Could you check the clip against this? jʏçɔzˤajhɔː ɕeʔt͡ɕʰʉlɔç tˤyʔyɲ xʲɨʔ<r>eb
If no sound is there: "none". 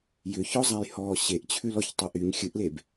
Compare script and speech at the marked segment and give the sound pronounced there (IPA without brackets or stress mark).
l